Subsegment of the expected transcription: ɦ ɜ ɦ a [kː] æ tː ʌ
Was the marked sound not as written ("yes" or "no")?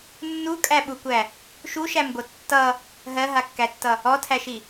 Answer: no